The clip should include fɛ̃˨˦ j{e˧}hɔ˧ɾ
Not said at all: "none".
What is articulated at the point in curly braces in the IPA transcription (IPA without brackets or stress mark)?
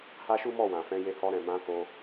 e˧